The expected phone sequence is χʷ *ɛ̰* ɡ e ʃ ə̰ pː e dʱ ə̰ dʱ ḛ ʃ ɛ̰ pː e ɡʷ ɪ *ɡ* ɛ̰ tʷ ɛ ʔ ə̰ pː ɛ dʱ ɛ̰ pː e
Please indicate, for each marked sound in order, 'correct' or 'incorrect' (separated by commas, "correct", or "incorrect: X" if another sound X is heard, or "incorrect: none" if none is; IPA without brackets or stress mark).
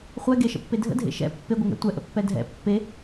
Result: incorrect: ɛ, incorrect: ŋ